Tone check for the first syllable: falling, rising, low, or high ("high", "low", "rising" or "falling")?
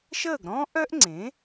falling